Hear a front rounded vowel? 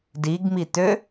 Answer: yes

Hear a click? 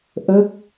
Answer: no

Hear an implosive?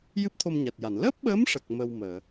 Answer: yes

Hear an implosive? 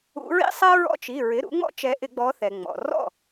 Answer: no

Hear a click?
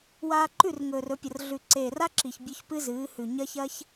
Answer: yes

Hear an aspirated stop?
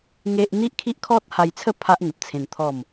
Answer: yes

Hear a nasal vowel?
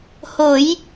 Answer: no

